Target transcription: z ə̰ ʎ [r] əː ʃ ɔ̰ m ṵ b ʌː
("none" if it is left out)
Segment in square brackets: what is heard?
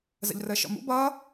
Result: r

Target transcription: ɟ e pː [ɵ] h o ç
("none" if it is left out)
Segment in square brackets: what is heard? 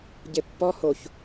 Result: ɔ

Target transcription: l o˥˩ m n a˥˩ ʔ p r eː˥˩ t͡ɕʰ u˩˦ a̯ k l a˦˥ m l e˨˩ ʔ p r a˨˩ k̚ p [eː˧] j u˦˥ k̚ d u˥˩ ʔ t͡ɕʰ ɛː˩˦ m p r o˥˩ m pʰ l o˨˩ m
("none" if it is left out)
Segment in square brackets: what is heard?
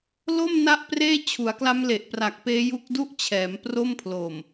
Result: eː˦˥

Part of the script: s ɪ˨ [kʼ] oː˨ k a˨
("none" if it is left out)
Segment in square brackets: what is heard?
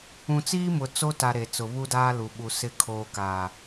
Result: kʰ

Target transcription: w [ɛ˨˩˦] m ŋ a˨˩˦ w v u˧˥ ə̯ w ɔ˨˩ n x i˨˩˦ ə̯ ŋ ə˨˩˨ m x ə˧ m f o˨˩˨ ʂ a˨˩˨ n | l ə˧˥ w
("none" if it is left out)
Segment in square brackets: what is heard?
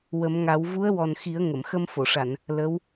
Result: ə˨˩˦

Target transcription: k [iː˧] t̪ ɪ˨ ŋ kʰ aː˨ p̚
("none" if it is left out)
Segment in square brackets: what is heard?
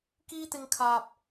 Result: iː˧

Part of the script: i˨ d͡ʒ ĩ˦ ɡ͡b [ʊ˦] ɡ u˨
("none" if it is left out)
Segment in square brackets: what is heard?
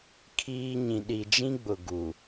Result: ʊ˨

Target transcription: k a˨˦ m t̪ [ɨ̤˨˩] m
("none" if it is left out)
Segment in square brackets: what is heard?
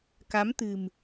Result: ɨ̤˨˩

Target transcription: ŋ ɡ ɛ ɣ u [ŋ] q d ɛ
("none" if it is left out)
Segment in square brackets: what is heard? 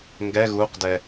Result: none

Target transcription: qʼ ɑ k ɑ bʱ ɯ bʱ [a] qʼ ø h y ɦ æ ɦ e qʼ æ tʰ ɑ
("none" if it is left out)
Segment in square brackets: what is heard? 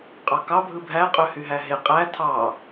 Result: æ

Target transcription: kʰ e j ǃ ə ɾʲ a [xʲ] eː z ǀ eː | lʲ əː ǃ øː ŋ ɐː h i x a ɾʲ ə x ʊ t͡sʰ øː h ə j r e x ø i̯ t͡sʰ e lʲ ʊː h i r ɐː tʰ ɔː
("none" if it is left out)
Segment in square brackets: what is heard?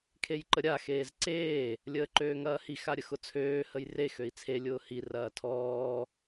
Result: x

